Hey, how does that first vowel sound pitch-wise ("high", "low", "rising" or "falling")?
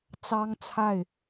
high